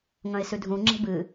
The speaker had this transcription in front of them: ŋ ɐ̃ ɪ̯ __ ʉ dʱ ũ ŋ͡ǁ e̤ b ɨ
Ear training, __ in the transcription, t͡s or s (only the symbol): s